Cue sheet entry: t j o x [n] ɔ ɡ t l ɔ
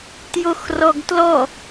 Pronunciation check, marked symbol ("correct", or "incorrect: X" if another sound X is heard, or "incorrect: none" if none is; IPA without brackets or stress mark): incorrect: r